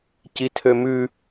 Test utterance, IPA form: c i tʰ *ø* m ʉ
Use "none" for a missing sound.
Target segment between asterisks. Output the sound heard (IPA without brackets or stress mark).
ø